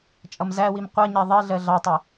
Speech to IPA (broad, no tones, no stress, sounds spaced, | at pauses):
t͡ʃʼ ʌ m z æ w i m qʷ ʌ ɲ ɛ ðˤ i ɮ ɜ ɮ ɑ tˤ ɪ